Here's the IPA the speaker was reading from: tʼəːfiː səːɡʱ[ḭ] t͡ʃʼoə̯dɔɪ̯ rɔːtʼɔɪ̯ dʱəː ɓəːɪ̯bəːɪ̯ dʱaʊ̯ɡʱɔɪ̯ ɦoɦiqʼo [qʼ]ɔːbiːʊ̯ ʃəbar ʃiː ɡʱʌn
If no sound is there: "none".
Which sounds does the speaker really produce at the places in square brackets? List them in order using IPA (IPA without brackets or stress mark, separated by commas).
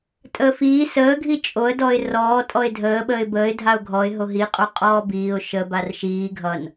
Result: i, qʼ